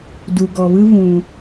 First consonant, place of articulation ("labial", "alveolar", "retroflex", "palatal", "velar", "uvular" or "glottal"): alveolar